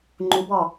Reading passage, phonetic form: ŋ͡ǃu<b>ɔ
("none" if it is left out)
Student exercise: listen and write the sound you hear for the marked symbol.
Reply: b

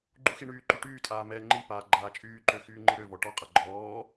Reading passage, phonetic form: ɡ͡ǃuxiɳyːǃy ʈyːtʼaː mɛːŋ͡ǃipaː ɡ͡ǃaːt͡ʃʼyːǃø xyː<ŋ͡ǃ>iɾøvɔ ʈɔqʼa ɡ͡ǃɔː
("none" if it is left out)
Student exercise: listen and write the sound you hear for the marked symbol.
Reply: ŋ͡ǃ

